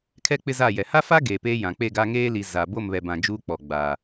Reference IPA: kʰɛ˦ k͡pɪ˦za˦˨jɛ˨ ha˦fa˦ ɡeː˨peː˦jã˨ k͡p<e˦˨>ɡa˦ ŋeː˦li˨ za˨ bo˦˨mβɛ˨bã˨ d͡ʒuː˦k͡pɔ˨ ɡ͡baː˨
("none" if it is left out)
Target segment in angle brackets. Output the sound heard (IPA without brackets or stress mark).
e˦˨